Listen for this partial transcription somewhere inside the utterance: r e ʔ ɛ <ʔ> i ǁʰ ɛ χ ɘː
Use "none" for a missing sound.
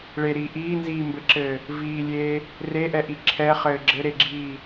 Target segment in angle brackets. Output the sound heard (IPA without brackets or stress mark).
ʔ